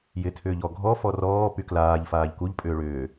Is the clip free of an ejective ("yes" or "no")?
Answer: no